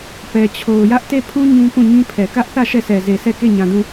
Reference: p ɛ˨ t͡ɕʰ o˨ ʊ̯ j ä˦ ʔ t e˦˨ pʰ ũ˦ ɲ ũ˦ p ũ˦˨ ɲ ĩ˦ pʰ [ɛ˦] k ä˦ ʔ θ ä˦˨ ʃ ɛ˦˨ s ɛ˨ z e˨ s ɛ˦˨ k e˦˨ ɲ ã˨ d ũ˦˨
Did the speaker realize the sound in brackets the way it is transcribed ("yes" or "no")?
no